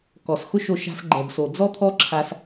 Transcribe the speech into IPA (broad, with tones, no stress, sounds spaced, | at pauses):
k ɔ˨ s x ʊ˦ ʃ o˧ ʃ a̤˧ s ɡ͡ǃ ɛ˨ b s o˨ d͡z ɔ˦ t̪ʰ ɔ˦ ǁʰ a˧ s